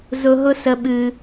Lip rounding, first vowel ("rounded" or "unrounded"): rounded